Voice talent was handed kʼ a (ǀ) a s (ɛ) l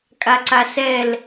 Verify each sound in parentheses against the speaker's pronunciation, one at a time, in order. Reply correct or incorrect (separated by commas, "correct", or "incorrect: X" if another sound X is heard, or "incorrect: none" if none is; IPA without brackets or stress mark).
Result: correct, correct